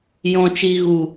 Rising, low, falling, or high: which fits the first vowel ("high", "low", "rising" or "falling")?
low